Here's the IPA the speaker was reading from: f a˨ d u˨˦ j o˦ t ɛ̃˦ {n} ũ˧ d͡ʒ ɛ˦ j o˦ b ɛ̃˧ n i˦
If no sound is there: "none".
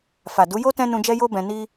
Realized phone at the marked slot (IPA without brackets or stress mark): n